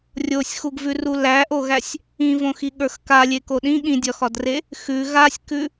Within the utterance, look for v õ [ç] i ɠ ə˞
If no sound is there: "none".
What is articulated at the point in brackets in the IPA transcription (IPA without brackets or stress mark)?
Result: x